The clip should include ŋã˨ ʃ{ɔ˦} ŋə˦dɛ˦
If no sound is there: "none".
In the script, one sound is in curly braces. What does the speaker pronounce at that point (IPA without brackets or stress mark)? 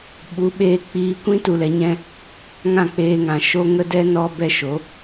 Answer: o˦